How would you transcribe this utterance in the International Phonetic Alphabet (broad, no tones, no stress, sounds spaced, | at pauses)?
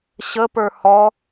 ɕ ə p ə˞ h ɔ